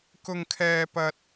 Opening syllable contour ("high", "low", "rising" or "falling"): high